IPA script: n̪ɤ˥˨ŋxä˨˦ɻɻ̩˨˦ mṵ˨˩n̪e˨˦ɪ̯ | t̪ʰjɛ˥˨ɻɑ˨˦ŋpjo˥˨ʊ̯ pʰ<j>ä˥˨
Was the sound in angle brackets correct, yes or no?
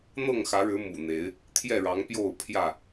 yes